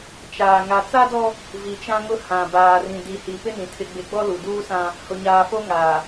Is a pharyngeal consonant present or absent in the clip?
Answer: absent